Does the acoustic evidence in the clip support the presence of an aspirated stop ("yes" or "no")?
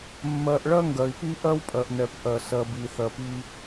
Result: no